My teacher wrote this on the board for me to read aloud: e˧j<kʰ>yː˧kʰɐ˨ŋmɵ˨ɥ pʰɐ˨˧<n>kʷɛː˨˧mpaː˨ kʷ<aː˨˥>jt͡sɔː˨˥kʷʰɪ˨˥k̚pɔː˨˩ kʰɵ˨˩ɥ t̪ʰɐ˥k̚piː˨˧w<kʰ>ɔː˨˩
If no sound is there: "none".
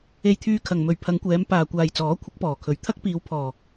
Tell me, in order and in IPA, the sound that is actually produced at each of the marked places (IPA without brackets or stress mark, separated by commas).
t̪ʰ, ŋ, aː˨, pʰ